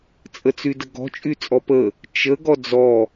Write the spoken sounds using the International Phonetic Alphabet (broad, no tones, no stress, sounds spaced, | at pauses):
t͡sʼ ə t͡s y d ə ɡ ɔ̤ t͡ʃʼ y t͡sʼ ɔ p ə | t͡ʃ ə ɡ ɔ d͡z ɔ